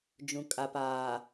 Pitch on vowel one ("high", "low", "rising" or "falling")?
low